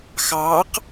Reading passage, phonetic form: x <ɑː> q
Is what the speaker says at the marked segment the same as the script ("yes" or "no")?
yes